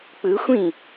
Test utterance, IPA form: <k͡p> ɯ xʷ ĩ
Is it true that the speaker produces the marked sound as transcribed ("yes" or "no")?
yes